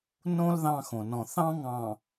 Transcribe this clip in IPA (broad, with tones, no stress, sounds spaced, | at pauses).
n õ˦ l ð ɑ̃˦ x õ˨ n ɔ̃˨ θ ɑ̃˦ ŋ ɑ̃˨